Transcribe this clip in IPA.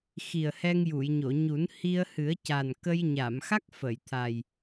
x i˨˩ ə̯ h ɛ˧ ŋ j u˨˩˨ j ɲ o˨˩˨ ɲ u˨˩˦ n h i˧ ə̯ h ɨ˨˩˦ ə̯ c a˨˩ n k ə˧ j ɲ a˨˩˨ m x a˦˥ k̚ f ə˨˩˨ j t̪ʰ a˨˩ j

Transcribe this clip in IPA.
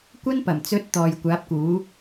kʷ ɐ˥ n p ɐ˨˩ m t͡s ɵ˨˥ t̚ t̪ ɔː˨ j kʷ aː˨˥ p̚ k uː˨˥

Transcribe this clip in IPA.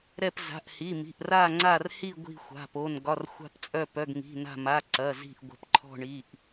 ɾ ɛ˧˩ p z a̤˩˧˩ ʔ h i˩˧˩ m i̤˩˧˩ ʔ r a˧˩ ŋ͡ǀ a˧˩ r h i˧˩ ɡʷ i̤˧˩ xʷ a̤˩˧˩ p o˩˧˩ n ɡ ɒ˩˧˩ r xʷ a̤˧˩ p t͡sʼ œ˧˩ p œ˩˧˩ ɡ ŋ i̤˩˧˩ n a̤˧˩ m a˩˧˩ ǀ ɐ˩˧˩ z i̤˧˩ ʔ ɡʷ ə̤˩˧˩ p ǃʰ ɔ̤˧˩ ɳ i˩˧˩ ʔ

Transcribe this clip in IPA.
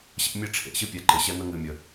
ɕ ḛ˦ mʲ e˦ ʈ͡ʂʰ ḛ˨ ɕ ɨ˦ pʲ ɛ˨˦ ǃ ɪ˨ ɕ ɛ˦ n̪ ə˦ ŋ ɨ˨ mʲ ə˨

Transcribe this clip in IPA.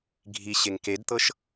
ɡʱ i ɕ e ŋ k e d t̪ ɤ ʃ

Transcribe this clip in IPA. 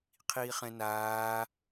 qʰ iː χ ɛ̃ n aː

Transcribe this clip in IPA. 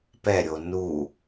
p ɛ ɾʲ o n u

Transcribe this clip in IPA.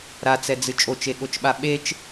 ɾ a t͡s ɛ d͡z ɨ t͡ʃʼ o t͡ʃ e ɠ o t͡ʃ ɓ a ɓ e t͡ʃ

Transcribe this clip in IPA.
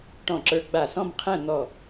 ʈ ɔ̃˧˩ ǁ ə˞˧ ɡ͡b a˧˩ s ɔ̃˥˧ m qʰ æ̃˥˧ n̪ ɔ˧˩

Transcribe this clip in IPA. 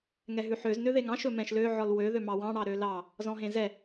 ŋ ɛ ɦ ʉ ħ ø z n ø ð e ŋ ɑ̃ ʃ ɵ m ɛ̃ ʃ l ø ʕ ɔ l w ø ð ø m ɑ w ɑ̃ ɽ ɑ ɾ ø l ɑ | z ɔ̃ ɦ ẽ z ɛ

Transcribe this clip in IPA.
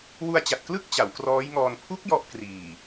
w u˧ a̯ t͡ɕ a˨˩ t̚ k l ɯ˥˩ k̚ t͡ɕ a˩˦ w k r ɔː˦˥ j ŋ ɔː˧ n pʰ u˦˥ k̚ j ɔ˦˥ ʔ k r iː˨˩

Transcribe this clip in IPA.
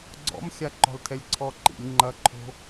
ɡ͡ǀ ɔ̰ m xʲ a ǃ ɔ̤ l tʰ ɛ lʲ ǀʰ ɔ ǃ ḭ lʲ ŋ͡ǃ ɐ ǃʰ o̤

